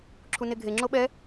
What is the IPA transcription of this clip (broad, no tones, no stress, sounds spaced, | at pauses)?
ǁʰ u n e ɡʱ e ŋ͡ǁ o ɓ ɛ